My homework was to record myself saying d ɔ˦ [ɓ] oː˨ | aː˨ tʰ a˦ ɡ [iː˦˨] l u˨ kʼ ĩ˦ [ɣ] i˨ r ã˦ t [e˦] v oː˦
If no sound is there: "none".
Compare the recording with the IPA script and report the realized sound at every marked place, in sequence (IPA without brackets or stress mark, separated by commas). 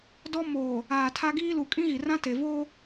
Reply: m, iː˦, ɣ, e˨